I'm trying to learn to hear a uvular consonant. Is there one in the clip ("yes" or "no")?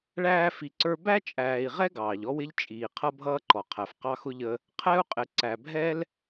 yes